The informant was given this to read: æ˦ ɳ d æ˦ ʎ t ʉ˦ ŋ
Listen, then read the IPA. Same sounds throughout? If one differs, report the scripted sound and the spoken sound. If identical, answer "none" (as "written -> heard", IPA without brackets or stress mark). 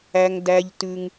ɳ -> ŋ